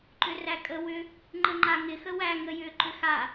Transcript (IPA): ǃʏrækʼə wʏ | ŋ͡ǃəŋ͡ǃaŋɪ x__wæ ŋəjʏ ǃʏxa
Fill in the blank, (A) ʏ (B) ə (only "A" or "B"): B